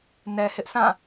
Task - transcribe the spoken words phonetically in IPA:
nɛ˨hɪ˦ʔsã˦˨

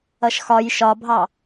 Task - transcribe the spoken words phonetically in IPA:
ʌʃxɒj ʃɒbʱɑ

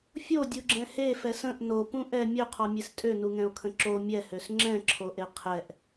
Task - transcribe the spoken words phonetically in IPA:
fʲodʲuɡ͡ǁɛ̃ hefɛs ə̃ʔ nopũ ʔɛ mʲøqʰɔmʲes tʼønuŋɛ̃o̯kʰə̃ ǁo mʲɛhøs ŋ͡ǁɛ̃ǁʰoʔe qʰɛʔ

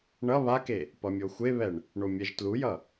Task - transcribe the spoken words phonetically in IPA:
ɳʌ βake | pʌmʲoxʷeβɛɳ | ɳomʲɛʒtlujʌ

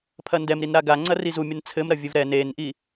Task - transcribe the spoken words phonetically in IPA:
pʰɐndɛmɾinɾa ɡaŋ͡ǀɐ rizumʲɐn t͡sʰɘmɾɐ vʲɘvɾɛ nenʔi

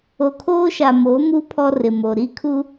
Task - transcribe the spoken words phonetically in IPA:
o˨kʰoː˦ʃa˨ mo˨˦mu˦ pʰɔ˦rɪ˨ mo˨ ɾi˦kʰu˦

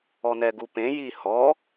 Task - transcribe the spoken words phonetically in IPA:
ɔnɛɡupẽ jihɔ

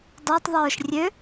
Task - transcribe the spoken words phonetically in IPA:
dˤøtˤðˤœːʃ rʲø

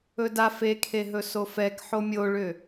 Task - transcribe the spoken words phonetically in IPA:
ɵda fekʰeɦɵ sofɛk ħomʲoɭʏ

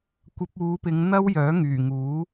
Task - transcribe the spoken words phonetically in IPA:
kʷɐ˧p̚uː˨˧pɪ˨˧ŋ n̪ɐ˥w jœː˨˥ŋyː˨˩ŋuː˨˥

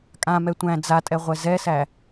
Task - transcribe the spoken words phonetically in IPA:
kʼãmɛ tʷæ̃ d͡zatʼɛʁʷɛ zɛsæ

